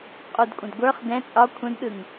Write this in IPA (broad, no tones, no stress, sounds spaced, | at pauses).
qʼ u d kʷʼ ə̃ d ɡʷ ə˞ χ d ɛ̃ t͡sʼ ɒ kʷʰ ə̃ d ɗ ɯ ŋ